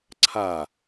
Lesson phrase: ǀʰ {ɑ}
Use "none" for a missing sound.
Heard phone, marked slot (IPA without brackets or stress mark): a